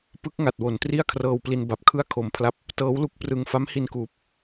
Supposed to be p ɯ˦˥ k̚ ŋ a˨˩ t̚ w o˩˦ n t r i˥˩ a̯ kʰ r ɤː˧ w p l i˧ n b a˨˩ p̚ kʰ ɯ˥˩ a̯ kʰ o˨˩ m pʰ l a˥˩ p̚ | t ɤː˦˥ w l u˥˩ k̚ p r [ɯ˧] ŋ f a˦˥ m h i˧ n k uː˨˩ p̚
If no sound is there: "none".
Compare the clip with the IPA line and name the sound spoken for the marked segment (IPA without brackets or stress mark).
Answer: ɯ˧